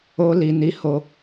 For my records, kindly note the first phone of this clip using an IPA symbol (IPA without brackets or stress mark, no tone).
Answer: o